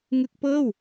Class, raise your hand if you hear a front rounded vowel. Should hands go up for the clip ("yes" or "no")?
no